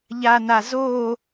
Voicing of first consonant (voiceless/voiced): voiced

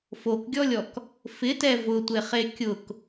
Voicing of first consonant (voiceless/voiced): voiceless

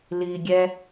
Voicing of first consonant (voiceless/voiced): voiced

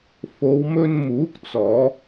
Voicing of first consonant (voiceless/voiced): voiceless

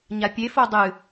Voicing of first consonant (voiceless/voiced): voiced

